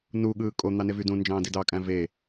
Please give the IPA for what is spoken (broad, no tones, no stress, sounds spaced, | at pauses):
n u ɠ ɯː kʼ o n̪ ɑ n e v y d ũ n d͡ʒ ɑ̃ː d i d ɑ kʼ æ̃ v e